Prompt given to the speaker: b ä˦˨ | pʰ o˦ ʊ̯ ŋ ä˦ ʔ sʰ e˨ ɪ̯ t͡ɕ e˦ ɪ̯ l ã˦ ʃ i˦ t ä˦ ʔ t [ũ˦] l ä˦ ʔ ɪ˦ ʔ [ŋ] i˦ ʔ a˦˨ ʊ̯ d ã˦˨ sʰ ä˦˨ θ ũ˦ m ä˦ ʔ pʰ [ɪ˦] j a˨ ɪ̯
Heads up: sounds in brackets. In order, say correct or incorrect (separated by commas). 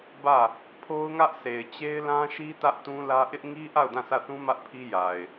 correct, correct, incorrect